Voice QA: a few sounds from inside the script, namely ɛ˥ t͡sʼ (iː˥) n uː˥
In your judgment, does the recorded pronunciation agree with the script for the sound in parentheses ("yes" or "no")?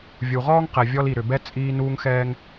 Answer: yes